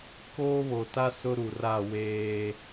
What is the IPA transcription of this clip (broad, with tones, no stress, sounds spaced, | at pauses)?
k oː˦ β o˨ t a˦ s ʊ˦ ɾ u˨ r a˦˨ w eː˦